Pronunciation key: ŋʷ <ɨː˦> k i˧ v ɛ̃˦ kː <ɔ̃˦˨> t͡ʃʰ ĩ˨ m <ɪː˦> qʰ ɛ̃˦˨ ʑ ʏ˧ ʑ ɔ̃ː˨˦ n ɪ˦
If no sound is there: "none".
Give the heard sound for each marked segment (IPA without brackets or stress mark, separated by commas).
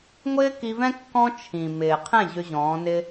ɪː˦, ɔ̃˦, ɪː˨